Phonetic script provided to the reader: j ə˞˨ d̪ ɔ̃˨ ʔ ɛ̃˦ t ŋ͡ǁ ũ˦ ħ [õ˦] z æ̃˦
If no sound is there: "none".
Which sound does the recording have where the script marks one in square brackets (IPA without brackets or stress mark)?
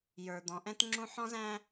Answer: ɔ̃˦